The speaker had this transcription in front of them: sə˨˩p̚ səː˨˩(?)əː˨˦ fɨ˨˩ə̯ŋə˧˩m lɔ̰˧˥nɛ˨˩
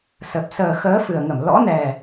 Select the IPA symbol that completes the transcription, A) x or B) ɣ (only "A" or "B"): A